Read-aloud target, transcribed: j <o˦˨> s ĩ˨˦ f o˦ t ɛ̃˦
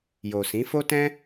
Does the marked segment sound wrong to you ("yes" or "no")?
yes